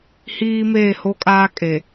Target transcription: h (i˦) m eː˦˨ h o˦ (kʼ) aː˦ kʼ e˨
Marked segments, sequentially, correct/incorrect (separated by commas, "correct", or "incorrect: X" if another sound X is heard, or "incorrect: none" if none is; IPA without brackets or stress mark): incorrect: iː˦, correct